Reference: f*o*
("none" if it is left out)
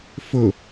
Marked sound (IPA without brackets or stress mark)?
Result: ɵ